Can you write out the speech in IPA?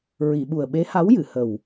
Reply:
ɹi˨˩˨ɓu˨˩ə̯ ɓe˧˥ha˧˥wjɨ˨˩˨hə˨˩w

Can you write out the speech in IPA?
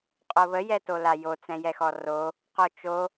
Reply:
qʼoβə jɛtolajo t͡sɛ̃jɛxɔro | qot͡ʃo

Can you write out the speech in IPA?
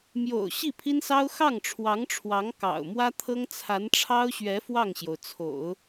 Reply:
mjo̰˨˩ʊ̯ ɕi˥˩pʰi˥nsɑ˥ʊ̯ xɑ˥˩ŋʈ͡ʂʰwɑ˧˥ŋʈ͡ʂʰwɑ˧˥ŋ kɑ̰˨˩ʊ̯ mwä˥t̪ʰɤ˥ŋ t͡sʰa˧˥nʈ͡ʂʰɑ˥ʊ̯ɕɥɛ˧˥ fwɑ˥˩ŋɕjo˩ʊ̯t͡sʰo̰˨˩˦ʊ̯

